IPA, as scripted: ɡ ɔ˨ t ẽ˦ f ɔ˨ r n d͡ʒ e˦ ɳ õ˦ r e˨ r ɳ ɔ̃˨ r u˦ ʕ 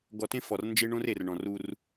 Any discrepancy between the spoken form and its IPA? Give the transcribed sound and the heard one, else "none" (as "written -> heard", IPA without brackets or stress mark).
ʕ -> r